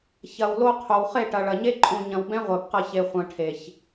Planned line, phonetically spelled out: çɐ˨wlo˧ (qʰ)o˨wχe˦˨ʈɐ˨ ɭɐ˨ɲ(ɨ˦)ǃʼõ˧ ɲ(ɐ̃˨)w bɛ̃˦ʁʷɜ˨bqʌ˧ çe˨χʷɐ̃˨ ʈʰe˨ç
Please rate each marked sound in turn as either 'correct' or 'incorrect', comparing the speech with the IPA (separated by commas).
correct, incorrect, correct